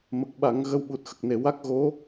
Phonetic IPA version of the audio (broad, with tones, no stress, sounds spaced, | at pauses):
m ə˨˩ k̚ ɓ a˨˩˦ ŋ ɣ ə˧ w ɓ u˨˩ t̚ x ə˨˩ k̚ n e˨˩˨ w a˦˥ k̚ ɣ o˧˥